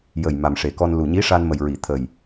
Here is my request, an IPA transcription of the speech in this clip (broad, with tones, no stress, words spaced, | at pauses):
jə˨˩j ma˨˩mʂe˨˩kɔ˧n lu˨˩ɲi˧˥ʂa˧nmə˨˩j ɹi˨˩˨t̪ʰə˨˩j